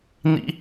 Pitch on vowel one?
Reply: high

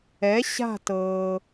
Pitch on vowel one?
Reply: rising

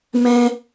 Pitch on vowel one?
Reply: high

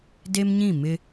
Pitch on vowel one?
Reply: high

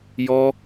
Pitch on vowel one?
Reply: high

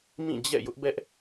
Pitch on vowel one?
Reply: falling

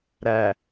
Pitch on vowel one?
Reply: low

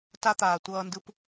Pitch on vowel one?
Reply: high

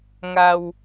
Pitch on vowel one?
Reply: low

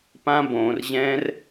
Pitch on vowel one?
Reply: high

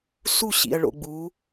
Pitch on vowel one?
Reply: falling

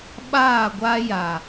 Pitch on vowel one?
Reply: falling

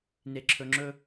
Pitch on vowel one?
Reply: low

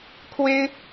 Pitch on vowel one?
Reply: high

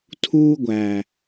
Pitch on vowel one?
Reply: high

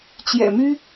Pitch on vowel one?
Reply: low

